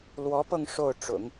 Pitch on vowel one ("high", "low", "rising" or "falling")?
rising